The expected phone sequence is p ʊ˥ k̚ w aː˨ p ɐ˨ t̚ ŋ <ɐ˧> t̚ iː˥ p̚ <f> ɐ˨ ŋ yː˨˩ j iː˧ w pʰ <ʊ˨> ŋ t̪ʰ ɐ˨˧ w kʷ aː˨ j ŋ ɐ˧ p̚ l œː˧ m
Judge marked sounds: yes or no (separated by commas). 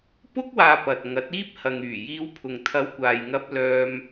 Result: no, no, yes